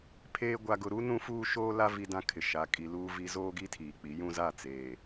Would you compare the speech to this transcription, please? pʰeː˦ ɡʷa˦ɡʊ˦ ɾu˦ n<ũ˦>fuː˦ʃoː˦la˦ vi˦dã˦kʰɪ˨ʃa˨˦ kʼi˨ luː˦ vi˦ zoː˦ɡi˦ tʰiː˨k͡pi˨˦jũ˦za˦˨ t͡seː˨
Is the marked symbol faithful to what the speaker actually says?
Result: yes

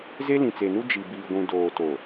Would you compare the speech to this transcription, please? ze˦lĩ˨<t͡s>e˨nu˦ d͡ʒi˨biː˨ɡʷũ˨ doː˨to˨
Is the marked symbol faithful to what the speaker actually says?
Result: yes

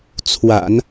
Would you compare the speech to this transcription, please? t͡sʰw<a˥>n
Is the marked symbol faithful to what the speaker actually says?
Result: no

